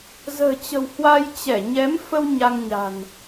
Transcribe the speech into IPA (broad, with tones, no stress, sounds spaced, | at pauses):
z ə̤ː˨˩ t͡ɕ ə̤˨˩ w h w a˧ j t͡ɕ ɛ˧˩ ɲ ɛ˨˦ m f ə˧ w ɲ a˧ ŋ ɲ a̤˨˩ n